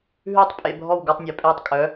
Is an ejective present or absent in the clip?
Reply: present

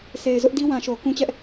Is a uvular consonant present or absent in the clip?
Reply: absent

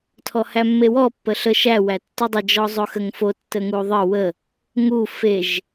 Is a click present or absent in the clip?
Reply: absent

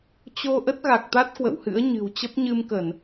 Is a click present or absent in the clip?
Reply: absent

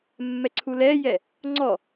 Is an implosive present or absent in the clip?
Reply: absent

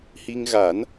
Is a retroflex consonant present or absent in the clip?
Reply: absent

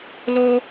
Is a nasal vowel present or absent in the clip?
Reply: absent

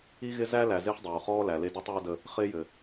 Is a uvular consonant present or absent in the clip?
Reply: present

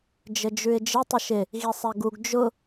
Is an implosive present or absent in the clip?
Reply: absent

